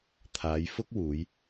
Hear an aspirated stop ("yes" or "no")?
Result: yes